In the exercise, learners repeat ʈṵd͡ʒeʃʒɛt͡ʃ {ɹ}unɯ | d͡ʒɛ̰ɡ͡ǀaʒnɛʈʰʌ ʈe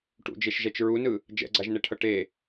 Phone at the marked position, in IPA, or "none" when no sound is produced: ɹ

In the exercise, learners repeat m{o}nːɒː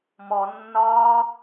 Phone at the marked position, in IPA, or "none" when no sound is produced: ɔ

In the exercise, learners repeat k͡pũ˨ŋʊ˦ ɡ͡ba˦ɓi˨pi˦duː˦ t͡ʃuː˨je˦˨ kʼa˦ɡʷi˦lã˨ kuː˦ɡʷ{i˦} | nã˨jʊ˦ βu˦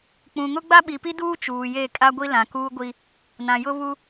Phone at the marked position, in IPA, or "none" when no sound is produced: i˦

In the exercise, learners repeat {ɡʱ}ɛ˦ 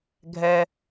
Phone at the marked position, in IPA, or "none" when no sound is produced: ɡʱ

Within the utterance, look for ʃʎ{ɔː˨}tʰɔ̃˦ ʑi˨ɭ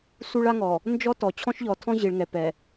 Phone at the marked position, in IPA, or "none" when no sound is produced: ɔ˨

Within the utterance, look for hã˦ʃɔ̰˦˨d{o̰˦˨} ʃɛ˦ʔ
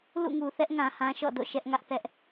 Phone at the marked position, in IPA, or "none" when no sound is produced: o̰˦˨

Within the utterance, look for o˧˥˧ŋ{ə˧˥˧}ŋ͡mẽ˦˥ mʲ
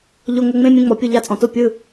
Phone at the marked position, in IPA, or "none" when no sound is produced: ə˧˥˧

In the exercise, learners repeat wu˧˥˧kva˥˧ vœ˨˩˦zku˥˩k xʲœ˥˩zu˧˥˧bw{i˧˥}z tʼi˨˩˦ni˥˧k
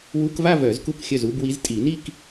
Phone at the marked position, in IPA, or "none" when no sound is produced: i˧˥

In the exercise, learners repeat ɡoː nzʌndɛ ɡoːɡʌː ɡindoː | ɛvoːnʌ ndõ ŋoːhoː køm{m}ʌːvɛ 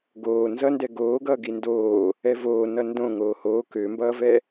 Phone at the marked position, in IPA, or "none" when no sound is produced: b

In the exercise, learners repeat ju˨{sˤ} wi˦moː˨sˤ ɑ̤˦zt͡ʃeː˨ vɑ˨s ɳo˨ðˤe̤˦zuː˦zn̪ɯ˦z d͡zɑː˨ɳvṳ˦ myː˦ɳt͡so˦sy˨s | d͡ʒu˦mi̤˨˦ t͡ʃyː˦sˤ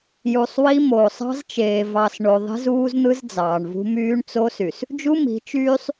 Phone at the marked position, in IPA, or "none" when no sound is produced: sˤ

